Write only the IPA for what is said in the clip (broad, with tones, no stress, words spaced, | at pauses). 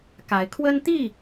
ka˨˦ɪ̯kʰwə˦nt̪i˥˨